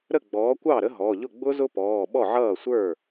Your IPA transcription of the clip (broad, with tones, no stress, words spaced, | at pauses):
ɾə˥˩ɡ͡bɔː˨˥ kʷɑ˥˩ ɾə˦˥ɦɔ˩˧˩ʎʊ˥˩ ɡ͡bʊ˦˥zʊ˦˥pɔː˩˧˩ ɓɔ˥˩ʕʌː˥˩sʷə˞˥˩